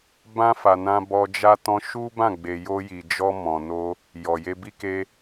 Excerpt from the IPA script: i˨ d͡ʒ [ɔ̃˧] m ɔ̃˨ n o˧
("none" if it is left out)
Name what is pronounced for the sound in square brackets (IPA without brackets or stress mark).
ɔ˧